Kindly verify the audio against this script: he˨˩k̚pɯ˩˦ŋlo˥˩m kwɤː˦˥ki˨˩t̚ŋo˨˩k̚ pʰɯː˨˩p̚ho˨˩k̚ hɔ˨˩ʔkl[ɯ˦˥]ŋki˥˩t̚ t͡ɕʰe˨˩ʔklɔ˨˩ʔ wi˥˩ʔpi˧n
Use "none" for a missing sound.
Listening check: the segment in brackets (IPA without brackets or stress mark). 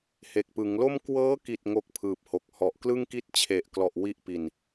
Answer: ɯ˥˩